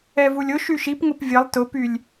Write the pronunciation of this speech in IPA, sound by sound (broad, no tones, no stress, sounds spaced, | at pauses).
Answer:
ɛ v u lʲ ʊ ʃ y ʃ i p ŋ ʊ p vʲ ə lˠ t ʊ p y lʲ